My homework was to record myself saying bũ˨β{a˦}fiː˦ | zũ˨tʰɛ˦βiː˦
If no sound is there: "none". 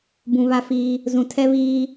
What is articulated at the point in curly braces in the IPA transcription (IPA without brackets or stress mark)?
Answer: a˦